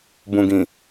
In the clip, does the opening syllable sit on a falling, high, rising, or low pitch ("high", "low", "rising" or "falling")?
low